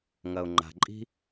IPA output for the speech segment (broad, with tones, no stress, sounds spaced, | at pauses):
ŋ ɐ˩ ʊ̯ ŋ͡ǃ a̤˩ ǃʼ i̤˥